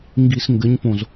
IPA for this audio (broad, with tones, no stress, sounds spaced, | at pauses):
ŋ ɡ i˨ s ŋ ɡ ɘ˨˦ ɲ p õ˨ z